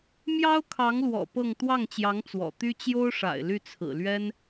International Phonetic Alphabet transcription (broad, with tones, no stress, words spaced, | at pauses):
mjɑ˥ʊ̯kʰɑ˧˥ŋlwɔ̰˨˩ pɤ˥˧ŋ t̪wɑ˥˩ŋt͡ɕjɑ˧˥ŋ t͡swɔ̰˨˩t̪y˥ t͡ɕjo˥ʊ̯ʂa̰˨˩ɪ̯ ly˥˩t͡sʰɹ̩˨˩lɥɛ˥n